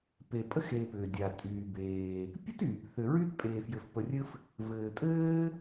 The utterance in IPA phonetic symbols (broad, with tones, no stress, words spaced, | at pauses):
pe˨pʼə˥xeː˨pʏː˩ dʲa˩tʼyː˩ beː˩ | pʲɘ˥t yː˩pθʏ˨ɹy˥t pʼeː˨fjɘ˨fpə˨rʲɘ˦f | vɘː˨tʼɘː˥